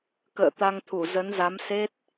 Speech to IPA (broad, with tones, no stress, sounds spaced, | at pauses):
k ə̰ː˧˨ t̪ a˧ ŋ t̪ʰ u˧˩ z ə˨˦ n z a˨˦ m s e˦˥ t̚